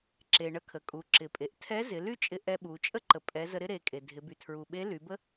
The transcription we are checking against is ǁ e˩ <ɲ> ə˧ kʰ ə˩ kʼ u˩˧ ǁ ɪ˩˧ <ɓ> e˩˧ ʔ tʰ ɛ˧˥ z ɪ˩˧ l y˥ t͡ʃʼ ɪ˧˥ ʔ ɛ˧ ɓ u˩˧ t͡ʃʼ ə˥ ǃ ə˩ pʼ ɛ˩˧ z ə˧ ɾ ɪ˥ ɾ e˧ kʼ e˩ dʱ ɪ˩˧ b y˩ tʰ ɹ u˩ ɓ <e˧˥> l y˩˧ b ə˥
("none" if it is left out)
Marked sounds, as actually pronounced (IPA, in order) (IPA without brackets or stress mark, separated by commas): ɳ, pʼ, e˧˥